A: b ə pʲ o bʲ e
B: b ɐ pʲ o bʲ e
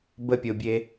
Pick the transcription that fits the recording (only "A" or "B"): A